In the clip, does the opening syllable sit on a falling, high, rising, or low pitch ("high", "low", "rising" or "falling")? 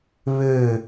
falling